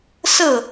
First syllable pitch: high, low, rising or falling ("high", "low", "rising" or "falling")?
falling